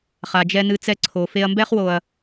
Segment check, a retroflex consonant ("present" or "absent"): absent